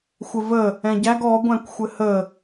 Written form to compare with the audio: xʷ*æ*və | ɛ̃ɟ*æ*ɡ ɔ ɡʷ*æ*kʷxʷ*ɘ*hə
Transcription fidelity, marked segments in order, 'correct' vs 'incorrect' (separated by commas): incorrect, correct, incorrect, correct